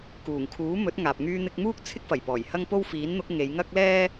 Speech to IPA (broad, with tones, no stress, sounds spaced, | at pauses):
k uː˨˩ ŋ kʰ uː˨˥ m ɵ˨˥ t̚ ŋ aː˨ p̚ ŋ yː˧ n̪ ɪ˧ k̚ m uː˥ k̚ t͡sʰ ɪ˥ k̚ f ɐ˨˩ j p ɔː˨˩ j h ɐ˥ ŋ p o˥ w f iː˨˥ n n̪ ʊ˨˥ k̚ ŋ e˨˧ j ŋ ɐ˥ k̚ l ɛː˥